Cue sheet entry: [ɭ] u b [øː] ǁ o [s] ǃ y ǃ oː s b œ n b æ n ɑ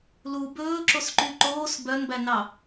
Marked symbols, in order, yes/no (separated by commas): no, no, yes